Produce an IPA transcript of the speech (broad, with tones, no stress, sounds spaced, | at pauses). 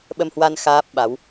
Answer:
ɓ ə˧ m h w a˧ n x aː˦˥ p̚ ɓ a˨˦ w